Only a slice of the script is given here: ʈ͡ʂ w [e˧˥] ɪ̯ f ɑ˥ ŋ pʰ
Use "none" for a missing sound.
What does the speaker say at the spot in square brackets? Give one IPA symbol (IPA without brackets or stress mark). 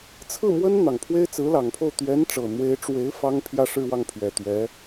e˧˥